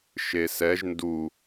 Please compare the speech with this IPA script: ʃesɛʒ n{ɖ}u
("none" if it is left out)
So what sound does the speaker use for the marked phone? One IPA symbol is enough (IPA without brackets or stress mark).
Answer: d